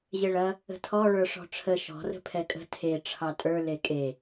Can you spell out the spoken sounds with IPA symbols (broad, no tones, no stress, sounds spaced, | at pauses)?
ʑ e ɭ ɐ | ə̤ tʰ ɔ ɭ ə˞ ʂ ɔ̤ ʈ͡ʂʰ ə ʃ ɔ̤ r ə̤ pʰ ɛ kʼ ə̤ tʰ e ʈ͡ʂʰ ɑ tʼ ə˞ l e kʼ e